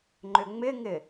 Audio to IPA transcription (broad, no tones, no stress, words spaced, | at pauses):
ŋ͡ǃʏŋ͡mɪŋɪ